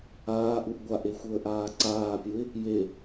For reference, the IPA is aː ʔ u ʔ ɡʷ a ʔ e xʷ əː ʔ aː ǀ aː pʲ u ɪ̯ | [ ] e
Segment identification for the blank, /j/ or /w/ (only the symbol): j